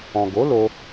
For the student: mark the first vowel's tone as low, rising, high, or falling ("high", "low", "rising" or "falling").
low